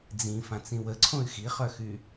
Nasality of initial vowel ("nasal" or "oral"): nasal